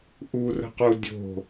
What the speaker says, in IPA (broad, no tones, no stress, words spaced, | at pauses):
ʔurə̤qu dʲo̤